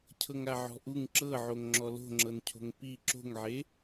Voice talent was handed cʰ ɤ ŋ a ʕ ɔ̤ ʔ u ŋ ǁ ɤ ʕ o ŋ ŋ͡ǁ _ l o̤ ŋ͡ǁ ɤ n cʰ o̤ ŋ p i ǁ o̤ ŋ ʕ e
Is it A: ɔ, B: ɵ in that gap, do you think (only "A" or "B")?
A